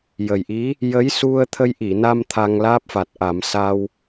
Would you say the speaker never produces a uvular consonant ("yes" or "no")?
yes